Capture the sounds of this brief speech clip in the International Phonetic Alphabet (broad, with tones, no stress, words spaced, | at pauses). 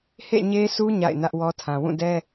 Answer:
hḛ˦˨ ɲe˦su˦ ɲa̰˦˨ɪ̯nä˦ʔwɔ˦tʰã˨ wũ˦˨dɛ˦